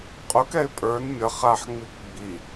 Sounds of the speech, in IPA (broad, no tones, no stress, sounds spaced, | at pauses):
qʼ u k ɛ ɪ̯ pʼ ə˞ n mʲ ʌ χ a ħ ŋ͡m i k ɡ͡b i